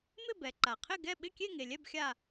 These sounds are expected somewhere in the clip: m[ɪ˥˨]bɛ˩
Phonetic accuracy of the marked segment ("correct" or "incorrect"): correct